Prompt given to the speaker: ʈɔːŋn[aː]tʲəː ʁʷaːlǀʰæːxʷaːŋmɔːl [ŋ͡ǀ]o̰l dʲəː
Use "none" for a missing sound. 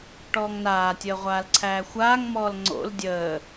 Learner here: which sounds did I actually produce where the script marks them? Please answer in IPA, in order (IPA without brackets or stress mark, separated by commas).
aː, ŋ͡ǀ